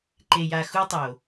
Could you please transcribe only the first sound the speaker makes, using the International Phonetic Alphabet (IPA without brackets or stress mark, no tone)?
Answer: ǃ